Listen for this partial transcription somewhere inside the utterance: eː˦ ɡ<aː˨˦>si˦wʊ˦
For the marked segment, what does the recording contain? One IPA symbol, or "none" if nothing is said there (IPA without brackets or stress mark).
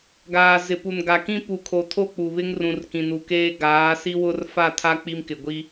aː˨˦